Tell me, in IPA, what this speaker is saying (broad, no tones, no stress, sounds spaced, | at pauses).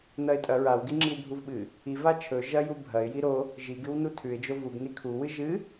n ɐ ɪ̯ tʼ ɐ ɹ a w ɡ i ŋ͡ǁ i w bʱ u v ɓ ɨ | i v a t͡ʃʰ ɵ ʒ ɐ j u bʱ ɐ ɪ̯ j i ɾ o | ʒ i ɡ ɨ w n u tʰ ʉ ɪ̯ d͡ʒ o v u ɡ n i kʰ u w ɨ ʒ ɨ